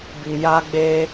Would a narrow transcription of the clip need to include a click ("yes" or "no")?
no